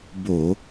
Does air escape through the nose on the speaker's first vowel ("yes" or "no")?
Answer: no